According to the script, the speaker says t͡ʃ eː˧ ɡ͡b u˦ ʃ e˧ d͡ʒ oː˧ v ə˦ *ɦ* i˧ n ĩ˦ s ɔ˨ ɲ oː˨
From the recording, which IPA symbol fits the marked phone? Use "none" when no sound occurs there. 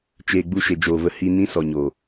h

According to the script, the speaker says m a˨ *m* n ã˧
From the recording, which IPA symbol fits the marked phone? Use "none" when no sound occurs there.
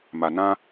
none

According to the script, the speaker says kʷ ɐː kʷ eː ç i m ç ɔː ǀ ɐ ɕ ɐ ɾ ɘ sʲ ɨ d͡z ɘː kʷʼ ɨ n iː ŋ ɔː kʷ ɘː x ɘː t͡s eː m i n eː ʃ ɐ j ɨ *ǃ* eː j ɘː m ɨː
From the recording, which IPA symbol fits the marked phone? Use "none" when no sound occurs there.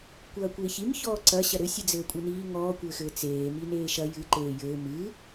ǃ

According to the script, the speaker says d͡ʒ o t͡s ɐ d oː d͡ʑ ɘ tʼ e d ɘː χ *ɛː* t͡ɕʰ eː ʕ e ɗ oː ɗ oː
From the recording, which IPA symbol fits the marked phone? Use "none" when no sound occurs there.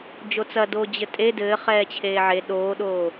ɛː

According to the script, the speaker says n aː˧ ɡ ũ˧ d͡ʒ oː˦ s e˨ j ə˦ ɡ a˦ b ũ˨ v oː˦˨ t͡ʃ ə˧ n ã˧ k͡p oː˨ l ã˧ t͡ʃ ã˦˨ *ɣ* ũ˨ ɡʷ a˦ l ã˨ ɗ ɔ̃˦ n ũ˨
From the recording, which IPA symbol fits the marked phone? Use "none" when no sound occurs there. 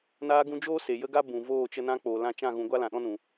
ɣ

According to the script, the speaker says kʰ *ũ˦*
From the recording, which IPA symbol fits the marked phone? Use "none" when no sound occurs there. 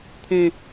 ũ˦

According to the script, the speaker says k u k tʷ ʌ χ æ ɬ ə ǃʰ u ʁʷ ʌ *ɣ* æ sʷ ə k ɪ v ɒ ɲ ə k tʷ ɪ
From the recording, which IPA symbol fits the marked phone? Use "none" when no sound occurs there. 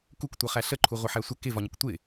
ħ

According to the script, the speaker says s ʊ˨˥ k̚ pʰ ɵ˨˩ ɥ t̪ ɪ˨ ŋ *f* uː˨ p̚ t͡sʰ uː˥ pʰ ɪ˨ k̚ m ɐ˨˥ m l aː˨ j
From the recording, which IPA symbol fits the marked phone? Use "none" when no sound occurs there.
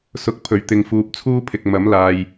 f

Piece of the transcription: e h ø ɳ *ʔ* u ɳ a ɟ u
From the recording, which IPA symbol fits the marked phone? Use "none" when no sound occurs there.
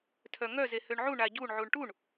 ʕ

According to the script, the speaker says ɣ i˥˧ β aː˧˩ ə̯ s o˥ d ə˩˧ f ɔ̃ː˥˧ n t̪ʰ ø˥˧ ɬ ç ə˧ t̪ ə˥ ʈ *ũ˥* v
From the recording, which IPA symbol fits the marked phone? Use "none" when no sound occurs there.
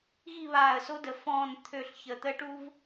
u˥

